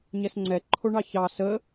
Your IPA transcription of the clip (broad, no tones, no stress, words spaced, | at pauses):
ɲɛsŋ͡ǀɛ ǃʰoɳɑçɑ sə